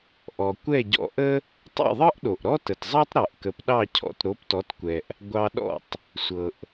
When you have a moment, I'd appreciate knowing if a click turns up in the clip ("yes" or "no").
no